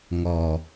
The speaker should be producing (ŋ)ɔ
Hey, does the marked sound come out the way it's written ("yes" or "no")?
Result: yes